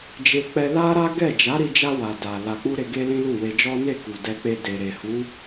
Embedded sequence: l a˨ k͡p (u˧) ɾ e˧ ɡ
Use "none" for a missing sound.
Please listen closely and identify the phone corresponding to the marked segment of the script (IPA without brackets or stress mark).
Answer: u˧